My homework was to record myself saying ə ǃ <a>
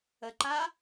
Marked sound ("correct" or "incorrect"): correct